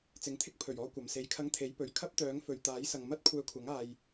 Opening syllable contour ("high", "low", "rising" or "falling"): rising